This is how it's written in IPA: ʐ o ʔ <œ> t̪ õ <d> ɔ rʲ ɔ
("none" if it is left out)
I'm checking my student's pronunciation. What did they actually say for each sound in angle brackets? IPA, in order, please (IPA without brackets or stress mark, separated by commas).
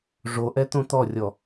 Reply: ɛ, t̪